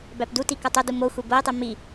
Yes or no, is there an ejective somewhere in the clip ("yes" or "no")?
no